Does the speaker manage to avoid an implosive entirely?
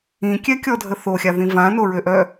yes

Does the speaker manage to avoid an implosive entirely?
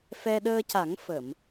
no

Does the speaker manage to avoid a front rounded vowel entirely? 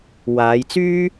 no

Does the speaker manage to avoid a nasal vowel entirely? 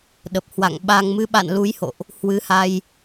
yes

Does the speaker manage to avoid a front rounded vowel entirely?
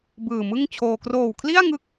yes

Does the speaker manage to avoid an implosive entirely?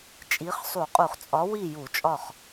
yes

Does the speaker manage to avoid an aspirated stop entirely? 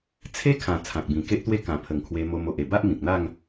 no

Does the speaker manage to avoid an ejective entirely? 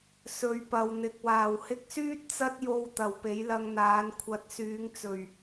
yes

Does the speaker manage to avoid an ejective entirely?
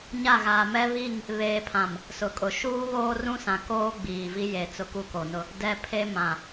no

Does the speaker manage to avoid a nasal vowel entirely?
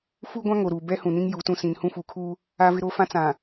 no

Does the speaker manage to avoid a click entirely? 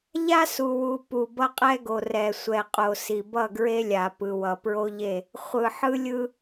yes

